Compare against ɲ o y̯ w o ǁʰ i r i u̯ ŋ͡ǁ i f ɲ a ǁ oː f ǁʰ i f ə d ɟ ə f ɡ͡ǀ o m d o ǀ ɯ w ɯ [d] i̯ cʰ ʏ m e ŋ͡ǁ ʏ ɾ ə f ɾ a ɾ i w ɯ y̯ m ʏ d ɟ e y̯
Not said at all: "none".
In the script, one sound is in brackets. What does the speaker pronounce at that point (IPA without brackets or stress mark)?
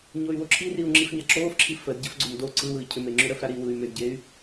none